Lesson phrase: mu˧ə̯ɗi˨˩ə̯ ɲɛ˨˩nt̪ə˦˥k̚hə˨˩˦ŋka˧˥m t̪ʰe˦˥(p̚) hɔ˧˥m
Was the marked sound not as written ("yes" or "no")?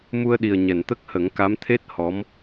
yes